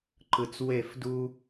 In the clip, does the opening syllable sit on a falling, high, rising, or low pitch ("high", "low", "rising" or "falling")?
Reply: low